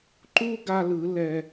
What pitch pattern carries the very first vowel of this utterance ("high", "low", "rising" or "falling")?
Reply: high